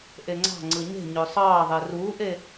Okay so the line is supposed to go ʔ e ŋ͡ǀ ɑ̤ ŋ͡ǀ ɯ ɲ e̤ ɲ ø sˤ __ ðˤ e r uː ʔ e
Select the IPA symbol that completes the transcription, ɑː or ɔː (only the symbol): ɑː